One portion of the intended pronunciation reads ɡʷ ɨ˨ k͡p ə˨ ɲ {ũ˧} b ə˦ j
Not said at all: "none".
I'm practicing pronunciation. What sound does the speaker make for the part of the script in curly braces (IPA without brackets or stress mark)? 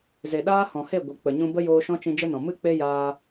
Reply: ũ˧